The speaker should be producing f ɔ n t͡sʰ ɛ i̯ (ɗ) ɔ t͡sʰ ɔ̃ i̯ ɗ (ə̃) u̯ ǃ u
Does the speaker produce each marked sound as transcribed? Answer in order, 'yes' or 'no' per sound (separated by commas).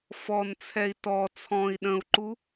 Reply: no, yes